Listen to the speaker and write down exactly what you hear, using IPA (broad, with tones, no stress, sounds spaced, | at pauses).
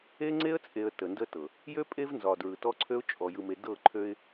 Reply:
e˦ ŋ͡ǀ e˦ ə̯ t͡sʼ e˨ ə̯ t ə˨ n d ə˦ t ɤ˨ | j ø˦ pʼ e˦ v n z ɒ˨ d ɹ ɯ˨ t ɔ˦ ǀʰ ø˦ ʊ̯ t͡ʃʼ ɔ˨ j ɯ˨ m e˨ d ɤ˦˨ ǃʰ ø˦ ɪ̯